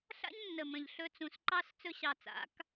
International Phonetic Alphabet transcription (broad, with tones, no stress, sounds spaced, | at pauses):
ɬ a̰˦ ɲ nː ə˨ m ə̃˨ ʎ ɬ ɵ˧ t͡s ũ˨ s ǃ ɑ˦ s t͡s ɵ˧ ɕ ɑ˨ t͡s a̰˨˦ k